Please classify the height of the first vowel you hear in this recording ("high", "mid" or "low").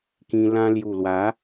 high